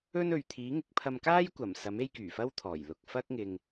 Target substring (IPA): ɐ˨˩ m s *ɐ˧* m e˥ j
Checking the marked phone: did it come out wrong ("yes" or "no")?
yes